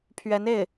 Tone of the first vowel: rising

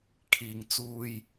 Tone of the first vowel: low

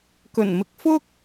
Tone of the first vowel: low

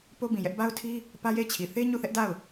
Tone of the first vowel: high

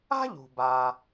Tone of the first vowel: high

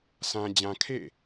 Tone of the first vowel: high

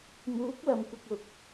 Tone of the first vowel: rising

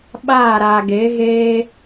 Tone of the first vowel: falling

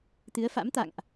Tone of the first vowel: rising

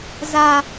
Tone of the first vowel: low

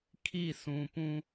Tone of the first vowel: falling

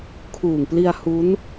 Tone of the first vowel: low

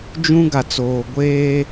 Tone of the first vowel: high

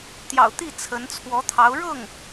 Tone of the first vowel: low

